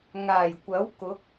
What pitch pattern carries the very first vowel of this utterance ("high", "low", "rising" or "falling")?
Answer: low